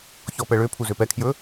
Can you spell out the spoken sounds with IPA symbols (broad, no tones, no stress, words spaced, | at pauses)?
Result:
çɔpɛɭøpʰu zøpɛkʰjɵ